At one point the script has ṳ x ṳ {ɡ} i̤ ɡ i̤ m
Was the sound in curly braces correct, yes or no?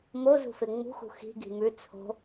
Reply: no